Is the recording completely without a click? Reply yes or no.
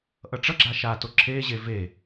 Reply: no